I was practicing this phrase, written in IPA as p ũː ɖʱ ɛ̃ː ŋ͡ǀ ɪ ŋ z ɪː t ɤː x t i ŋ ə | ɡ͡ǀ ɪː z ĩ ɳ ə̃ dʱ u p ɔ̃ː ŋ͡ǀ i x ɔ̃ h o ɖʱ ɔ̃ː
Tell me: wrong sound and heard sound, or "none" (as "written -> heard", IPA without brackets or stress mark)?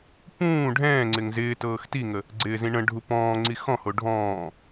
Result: dʱ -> ɖʱ